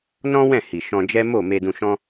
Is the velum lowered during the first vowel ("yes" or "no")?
yes